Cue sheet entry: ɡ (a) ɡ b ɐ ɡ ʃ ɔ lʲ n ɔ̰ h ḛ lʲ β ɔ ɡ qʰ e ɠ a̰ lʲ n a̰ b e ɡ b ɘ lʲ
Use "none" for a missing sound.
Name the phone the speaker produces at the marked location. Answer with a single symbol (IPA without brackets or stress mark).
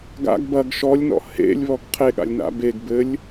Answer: a̰